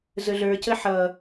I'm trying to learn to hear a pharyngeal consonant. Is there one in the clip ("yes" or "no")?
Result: yes